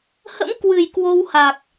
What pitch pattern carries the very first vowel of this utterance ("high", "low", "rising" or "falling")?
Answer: rising